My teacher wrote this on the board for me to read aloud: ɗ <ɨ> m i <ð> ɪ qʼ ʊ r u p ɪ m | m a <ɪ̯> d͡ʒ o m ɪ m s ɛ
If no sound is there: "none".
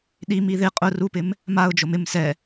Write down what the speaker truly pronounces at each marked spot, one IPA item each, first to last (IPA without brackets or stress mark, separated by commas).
i, ð, ʊ̯